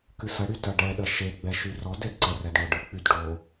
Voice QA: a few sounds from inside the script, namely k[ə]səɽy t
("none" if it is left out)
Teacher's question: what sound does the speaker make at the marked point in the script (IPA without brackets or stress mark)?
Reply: ɨ